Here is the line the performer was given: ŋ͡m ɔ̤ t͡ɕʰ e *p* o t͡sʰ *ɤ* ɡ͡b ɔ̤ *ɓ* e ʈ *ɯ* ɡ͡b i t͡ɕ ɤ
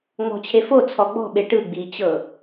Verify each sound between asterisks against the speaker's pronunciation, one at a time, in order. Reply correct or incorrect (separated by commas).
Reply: incorrect, incorrect, correct, correct